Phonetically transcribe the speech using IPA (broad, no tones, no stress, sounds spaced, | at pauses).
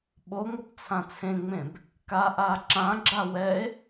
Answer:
ɓ o ŋ o b t͡sʰ ã t͡sʰ ẽ ŋ͡m ẽ b | k a ʔ a ǁ ã ɡ͡ǁ a w ɛ e̯